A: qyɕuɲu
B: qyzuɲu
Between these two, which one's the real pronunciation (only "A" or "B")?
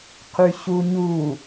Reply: A